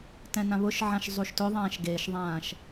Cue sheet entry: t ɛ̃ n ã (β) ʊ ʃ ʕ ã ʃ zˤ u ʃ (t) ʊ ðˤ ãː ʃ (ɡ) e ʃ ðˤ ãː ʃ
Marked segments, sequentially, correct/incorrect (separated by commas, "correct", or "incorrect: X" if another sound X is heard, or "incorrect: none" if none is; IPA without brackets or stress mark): correct, correct, correct